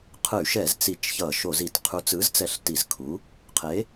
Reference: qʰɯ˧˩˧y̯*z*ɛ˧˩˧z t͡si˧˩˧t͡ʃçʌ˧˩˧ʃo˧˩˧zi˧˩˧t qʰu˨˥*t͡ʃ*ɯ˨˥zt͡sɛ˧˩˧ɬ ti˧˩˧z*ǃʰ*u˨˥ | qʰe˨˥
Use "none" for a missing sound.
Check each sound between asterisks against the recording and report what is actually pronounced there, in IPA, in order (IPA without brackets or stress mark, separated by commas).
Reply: ʃ, t͡s, kʰ